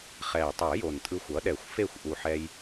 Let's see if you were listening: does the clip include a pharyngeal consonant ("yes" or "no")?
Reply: yes